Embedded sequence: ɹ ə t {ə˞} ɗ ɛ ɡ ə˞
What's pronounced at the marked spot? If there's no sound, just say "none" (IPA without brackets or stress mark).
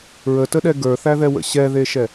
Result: ə